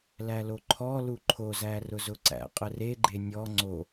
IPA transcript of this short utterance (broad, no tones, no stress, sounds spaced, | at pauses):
l æ l o ǃʰ ɔ l u ǃʰ o z æ r ʊ z ʊ ǀ æ̰ qʼ ə r e ɡ͡ǃ e nʲ ɔ ŋ͡ǀ o